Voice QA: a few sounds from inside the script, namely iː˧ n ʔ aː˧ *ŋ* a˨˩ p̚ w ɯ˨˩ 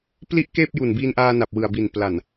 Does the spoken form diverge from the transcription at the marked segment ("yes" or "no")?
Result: yes